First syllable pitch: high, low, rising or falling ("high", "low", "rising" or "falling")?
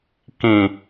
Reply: low